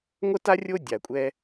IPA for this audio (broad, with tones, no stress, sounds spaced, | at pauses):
ŋʷ ə˥ t a˥ rʲ o˥ dʲ a˩ kʷʼ ɛ˧